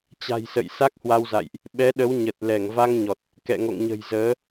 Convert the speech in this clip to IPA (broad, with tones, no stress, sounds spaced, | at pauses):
t͡ɕ a̤˨˩ j s ə̰˧˨ j s a˦˥ k̚ h w a˧ w z a̰˧˨ j ʔ | ɓ ɛ˨˦ ɗ ə˨˦ w ɲ ə˨˩ t̚ l ɛ˧˩ ŋ v a˧ ŋ ɲ ɔ˨˩ t̚ | k ɛ̰˧˨ ŋ o̰˧˨ ŋ ɲ ə̤˨˩ j z əː˨˦